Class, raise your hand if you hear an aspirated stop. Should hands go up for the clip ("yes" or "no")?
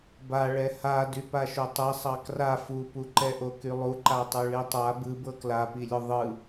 no